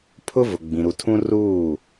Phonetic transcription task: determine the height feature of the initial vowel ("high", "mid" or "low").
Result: high